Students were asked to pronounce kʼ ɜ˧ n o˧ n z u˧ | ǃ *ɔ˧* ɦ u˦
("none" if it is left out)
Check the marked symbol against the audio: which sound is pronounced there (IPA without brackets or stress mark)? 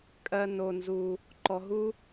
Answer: ɔ˧